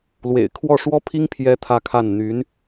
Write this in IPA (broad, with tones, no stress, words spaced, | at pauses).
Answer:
lwḛ˨˩ɪ̯kʰwɔ˥˩ ʂwɔ˥pʰi˥ŋ pʰjɛ˥t̪ʰä˥˧kʰa˥˩n n̪y˧˥n